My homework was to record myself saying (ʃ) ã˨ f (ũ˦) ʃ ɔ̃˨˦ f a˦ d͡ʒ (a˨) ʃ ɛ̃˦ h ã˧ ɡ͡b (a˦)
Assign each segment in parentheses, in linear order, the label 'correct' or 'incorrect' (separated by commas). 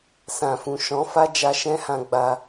incorrect, incorrect, incorrect, incorrect